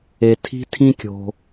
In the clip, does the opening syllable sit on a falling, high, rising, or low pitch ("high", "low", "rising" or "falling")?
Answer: low